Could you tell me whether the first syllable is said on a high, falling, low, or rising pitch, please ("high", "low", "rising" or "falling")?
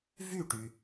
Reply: falling